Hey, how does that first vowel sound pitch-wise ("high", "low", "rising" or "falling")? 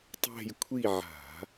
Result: falling